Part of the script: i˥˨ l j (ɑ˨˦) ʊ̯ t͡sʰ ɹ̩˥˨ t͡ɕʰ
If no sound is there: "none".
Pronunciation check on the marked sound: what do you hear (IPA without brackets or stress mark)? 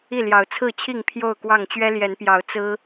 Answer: ɑ˨˦